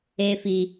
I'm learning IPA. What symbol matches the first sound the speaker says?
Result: e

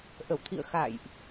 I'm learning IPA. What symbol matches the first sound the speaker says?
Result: ʔ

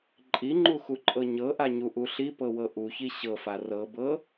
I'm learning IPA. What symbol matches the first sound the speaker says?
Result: ǃʼ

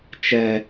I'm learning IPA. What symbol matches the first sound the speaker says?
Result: t͡ʃ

